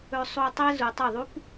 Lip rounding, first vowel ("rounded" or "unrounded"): rounded